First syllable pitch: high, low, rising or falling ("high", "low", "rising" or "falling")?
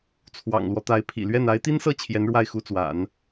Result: low